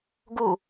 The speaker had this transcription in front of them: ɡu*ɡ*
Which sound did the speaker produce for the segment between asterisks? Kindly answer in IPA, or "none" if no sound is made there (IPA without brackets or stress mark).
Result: none